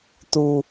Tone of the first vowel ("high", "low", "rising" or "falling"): low